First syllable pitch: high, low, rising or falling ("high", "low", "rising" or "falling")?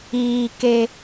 low